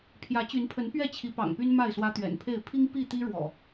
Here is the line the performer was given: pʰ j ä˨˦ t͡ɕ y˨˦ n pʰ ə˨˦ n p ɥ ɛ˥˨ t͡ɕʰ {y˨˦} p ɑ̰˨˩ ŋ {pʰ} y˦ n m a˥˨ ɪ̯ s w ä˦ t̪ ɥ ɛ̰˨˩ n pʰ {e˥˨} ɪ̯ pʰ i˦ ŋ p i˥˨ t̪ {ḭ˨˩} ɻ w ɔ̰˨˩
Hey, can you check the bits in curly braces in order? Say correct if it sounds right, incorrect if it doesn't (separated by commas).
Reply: incorrect, incorrect, correct, incorrect